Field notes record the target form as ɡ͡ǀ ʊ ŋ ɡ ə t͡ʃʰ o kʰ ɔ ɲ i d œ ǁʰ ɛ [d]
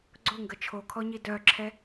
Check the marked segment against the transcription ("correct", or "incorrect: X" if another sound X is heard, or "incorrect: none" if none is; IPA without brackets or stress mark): incorrect: none